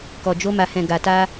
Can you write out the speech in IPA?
k ɔ˨ d͡ʒ o˧ m a˨ h ɛ̃˨ ɡ a˨ t a˧

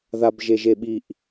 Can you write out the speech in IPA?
ð a b ʒ e ʒ e ɓ i ʔ

